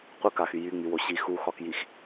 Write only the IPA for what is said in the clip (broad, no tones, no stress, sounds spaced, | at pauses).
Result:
qʷ ə k a x y j y ŋ͡m y w o ɕ i x u x ɒ k j i x